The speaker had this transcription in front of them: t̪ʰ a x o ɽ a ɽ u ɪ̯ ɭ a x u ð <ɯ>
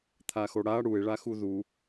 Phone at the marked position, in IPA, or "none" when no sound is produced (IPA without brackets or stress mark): u